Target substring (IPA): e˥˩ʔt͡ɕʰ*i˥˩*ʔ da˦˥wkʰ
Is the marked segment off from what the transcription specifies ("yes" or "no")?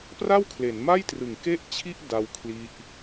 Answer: no